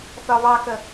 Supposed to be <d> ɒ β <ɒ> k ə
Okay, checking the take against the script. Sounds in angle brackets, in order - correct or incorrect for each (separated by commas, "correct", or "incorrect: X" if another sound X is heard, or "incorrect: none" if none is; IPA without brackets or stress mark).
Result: incorrect: θ, incorrect: ɑ